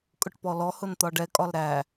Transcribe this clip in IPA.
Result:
kʼ ʊ ʈ p ɔ l ɔ h ʊ n t̪ ɒ ɖ ɛ kʼ ɒ l ɾ æ

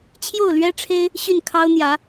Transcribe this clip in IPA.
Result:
t͡ɕʰ j o˥˩ ʊ̯ l ɥ ɛ˥ ʈ͡ʂʰ e˥ ɪ̯ | ɕ y˥˩ n kʰ ɑ˥ ʊ̯ n̪ j ä˧˥

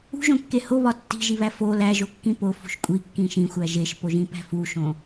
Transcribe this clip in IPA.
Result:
ṳ ʒ õ kː e h o β ɒ tː i̤ ʒ i β æ f o l æ ʒ o kː ĩ p o f ṳ ʃ kʷʼ i kː ĩ ʃ ĩ xʷ æ ʒ e ʃ p o ʒ ĩ p æ̤ f u ʃ õ

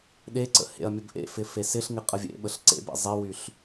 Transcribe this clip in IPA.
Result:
ɗ e ǀ ə̰ h ḛ ɐ̯ mʲ ə b ʔ ḛ f ɪ f e s ɪ ɬ ŋ ɪ qʼ ə vʲ ḛ ɓ ə ɬ ǀ ḛ b ḛ zˤ ɪ w y ɬ

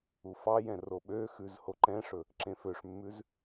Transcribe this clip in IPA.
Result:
u f ɑ j ɛ̃ r o ɓ ø x ʉ z h o ǃ ɛ̃ ʂ ɵ | ǁ ẽ f ø ʂ mː ʉ z

